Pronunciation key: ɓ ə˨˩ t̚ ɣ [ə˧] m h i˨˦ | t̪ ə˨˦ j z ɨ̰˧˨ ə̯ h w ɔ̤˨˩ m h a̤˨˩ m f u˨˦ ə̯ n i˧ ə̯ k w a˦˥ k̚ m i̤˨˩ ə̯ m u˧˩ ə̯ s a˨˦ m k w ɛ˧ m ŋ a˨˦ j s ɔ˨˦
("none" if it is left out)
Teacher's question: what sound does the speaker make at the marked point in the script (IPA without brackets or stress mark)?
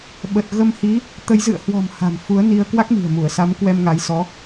ə˧